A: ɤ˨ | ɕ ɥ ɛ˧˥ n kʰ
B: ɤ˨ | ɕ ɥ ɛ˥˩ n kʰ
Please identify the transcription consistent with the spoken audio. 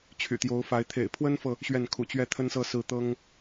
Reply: B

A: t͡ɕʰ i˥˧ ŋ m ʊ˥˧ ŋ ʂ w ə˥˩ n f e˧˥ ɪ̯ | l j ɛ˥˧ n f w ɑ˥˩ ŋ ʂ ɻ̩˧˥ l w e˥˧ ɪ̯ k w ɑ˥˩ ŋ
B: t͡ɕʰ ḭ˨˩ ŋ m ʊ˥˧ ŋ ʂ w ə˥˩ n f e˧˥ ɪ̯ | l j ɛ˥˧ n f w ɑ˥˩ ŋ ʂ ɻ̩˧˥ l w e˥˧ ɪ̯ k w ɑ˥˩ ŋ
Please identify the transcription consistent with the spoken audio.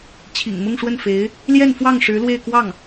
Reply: B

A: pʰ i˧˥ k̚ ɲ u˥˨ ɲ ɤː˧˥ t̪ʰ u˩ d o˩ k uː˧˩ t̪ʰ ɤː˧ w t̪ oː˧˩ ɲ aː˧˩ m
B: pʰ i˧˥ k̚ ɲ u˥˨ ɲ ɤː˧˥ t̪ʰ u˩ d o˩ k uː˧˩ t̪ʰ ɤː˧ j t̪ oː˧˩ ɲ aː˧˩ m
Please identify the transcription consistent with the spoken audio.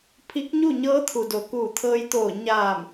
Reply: B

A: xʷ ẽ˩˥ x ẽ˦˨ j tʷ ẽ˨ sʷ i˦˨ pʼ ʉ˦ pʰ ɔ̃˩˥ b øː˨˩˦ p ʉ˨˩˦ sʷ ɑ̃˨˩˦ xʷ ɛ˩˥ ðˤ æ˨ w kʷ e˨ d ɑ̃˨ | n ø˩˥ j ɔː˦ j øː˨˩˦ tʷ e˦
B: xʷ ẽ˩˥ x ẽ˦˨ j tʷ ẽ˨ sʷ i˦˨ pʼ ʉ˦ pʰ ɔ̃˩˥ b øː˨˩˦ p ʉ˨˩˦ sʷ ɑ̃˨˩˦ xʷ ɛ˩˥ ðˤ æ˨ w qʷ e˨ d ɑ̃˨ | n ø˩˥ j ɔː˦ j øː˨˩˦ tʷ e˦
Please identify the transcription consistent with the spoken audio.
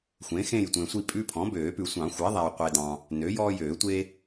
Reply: B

